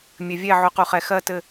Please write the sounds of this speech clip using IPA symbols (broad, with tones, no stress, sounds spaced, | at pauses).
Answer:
mʲ ɘ˨ vʲ ɛ˦˨ ʕ o˨˦ q u˨ χ ɛ˨ x ɜ˦˨ t ɘ˦˨